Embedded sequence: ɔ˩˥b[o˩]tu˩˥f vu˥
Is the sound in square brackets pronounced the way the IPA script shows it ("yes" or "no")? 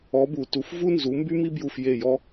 no